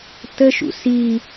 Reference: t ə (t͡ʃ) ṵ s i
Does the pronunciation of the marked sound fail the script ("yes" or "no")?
yes